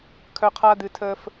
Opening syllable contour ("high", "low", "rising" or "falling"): low